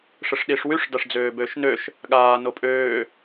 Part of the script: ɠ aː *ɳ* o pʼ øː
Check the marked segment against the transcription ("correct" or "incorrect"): incorrect